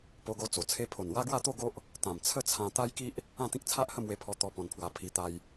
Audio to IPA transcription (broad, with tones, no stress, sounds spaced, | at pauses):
p o˧ ɡ o˧ t͡s o˨˩ t͡sʰ e˦ pʰ o˨˩ n w a˦ ɡ w a˥˧ t̪ o˥˧ ɡ o˦ ʔ | t̪ ã˨˩ m t͡sʰ ə˥˧ t͡sʰ ã˧ t̪ a˦ j k i˦ ʔ | ã˥˧ t̪ ĩ˦ k̚ t͡sʰ a˦ ʔ h ə˥˧ m w e˧ pʰ ɔ˧ t̪ ɔ˧ p ɔ̃˧ n pʰ w a˧ pʰ i˧ t̪ a˧ j